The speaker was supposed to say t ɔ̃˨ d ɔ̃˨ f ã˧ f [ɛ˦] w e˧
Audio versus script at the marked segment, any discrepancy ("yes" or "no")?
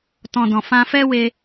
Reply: no